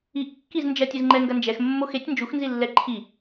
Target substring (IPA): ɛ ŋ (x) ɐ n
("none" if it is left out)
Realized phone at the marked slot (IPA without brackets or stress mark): ɡ